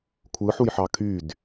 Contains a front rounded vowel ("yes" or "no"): yes